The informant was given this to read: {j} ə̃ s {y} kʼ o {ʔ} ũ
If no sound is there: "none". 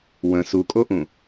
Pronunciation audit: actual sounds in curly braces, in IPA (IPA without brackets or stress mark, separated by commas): w, u, ʔ